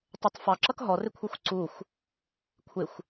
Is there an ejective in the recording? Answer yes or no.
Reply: no